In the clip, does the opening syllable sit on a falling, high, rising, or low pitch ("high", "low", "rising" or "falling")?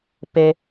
low